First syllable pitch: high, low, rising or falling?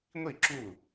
falling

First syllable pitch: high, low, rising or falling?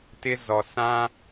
high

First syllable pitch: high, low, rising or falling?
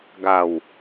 low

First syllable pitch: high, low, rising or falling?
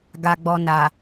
low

